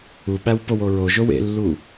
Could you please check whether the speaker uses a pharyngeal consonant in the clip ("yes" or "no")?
no